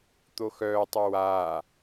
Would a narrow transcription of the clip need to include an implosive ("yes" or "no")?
no